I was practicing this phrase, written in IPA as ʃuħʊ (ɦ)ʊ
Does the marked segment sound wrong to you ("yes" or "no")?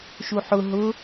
no